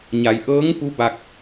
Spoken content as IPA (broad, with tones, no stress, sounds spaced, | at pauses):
ɲ a˩˧ j ʔ ɤː˧˥ ŋ p u˧˥ b a˧ k̚